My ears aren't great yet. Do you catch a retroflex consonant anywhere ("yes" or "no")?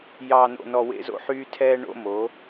yes